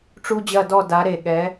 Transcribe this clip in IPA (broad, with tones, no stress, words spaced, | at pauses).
ʈ͡ʂu˦d͡ʑɐ˦˨dɔ˦˨ da˨˦ ɾe˨˩ɠɛ˨˦